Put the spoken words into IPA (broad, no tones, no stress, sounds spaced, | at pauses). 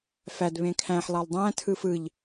f æ d β ẽ kʰ æ̃ ħ lˠ ɑ lˠ dˤ æ̃ tʰ ɯ f ɯ ʎ